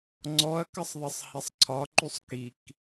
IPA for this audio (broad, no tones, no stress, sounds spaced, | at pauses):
ŋ͡ǀ ɔ ɐ̯ k ə sˤ ðˤ ɘ sˤ h ɛ sˤ ǀʰ ɒ ǃ y sˤ k i k